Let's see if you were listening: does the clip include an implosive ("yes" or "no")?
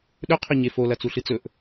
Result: yes